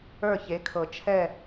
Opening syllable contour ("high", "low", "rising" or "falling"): falling